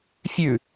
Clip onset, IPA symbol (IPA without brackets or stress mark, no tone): fʲ